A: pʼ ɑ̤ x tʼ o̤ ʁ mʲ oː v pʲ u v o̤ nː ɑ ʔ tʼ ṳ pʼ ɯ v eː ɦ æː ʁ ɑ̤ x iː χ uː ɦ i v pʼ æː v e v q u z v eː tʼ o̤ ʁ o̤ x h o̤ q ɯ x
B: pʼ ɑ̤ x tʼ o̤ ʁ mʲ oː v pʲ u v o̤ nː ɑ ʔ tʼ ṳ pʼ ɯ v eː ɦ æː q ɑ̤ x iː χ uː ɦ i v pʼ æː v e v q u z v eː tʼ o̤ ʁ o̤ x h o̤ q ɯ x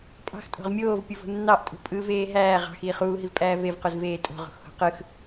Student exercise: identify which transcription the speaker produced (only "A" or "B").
A